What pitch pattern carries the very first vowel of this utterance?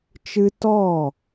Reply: high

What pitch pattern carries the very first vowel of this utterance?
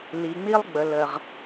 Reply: low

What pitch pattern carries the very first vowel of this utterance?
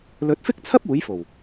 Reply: rising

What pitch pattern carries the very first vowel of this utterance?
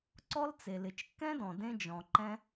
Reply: high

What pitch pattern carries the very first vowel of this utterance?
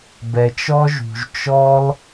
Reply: low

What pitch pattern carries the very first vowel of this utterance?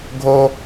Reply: high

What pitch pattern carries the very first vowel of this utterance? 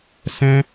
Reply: high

